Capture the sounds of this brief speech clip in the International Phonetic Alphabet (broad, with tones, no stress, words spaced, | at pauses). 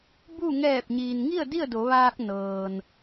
bu˥˨ ŋɛː˧˩p̚ɲiː˩nŋi˥˨ə̯ di˥˨ə̯do˩˧ʋaː˧k̚ nɤː˩n